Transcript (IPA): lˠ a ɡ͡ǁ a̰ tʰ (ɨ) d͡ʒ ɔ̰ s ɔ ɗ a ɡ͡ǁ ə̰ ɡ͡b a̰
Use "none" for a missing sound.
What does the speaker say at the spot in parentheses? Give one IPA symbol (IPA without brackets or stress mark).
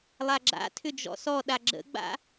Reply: ʏ